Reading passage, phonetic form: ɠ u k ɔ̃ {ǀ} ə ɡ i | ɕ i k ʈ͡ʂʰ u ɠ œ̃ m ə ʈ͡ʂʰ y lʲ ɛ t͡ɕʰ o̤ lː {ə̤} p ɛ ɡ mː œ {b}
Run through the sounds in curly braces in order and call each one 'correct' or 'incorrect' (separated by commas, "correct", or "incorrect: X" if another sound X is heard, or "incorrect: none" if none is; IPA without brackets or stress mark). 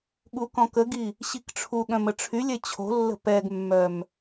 incorrect: k, correct, incorrect: m